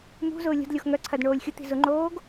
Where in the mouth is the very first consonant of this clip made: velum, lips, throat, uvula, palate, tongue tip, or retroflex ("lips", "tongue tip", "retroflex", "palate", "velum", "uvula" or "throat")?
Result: lips